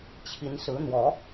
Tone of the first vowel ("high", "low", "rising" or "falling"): rising